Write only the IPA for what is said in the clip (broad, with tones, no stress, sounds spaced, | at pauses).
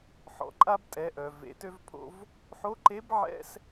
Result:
ħ ɔ̰˩˧ ǃʼ a˧ b tʼ ɛ˩˧ ʔ œ˩ v ḛ˩˧ t ø˧ v pʰ o̰˧ v | ħ o˧˥ ǃ e˧˥ b ʕ ɛ̰˥ s